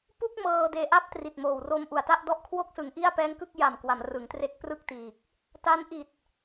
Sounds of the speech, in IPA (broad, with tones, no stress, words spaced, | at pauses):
pu˥˩k̚mɤː˧ deː˧ʔa˥˩p̚tri˨˩t̚moː˨˩w ro˧mʔu˨˩a̯ta˥˩ʔ dɔ˦˥ʔkʰwo˥˩k̚sɯ˩˦ŋʔi˥˩a̯ pɛː˦˥ŋkɯ˥˩k̚ ja˨˩mkwa˩˦m rɯ˩˦ŋtre˦˥k̚prɯ˥˩k̚tiː˨˩k̚ | ta˦˥nʔi˨˩t̚